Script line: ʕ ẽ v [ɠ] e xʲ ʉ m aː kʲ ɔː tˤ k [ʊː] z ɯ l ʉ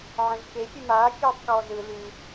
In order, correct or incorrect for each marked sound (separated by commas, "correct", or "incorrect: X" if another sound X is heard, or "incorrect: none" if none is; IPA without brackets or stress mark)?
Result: incorrect: k, incorrect: ɔː